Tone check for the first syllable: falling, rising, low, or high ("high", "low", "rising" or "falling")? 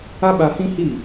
high